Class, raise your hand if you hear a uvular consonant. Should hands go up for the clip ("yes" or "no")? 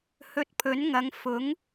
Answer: no